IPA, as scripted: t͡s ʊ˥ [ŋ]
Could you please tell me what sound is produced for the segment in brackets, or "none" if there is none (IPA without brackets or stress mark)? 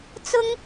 ŋ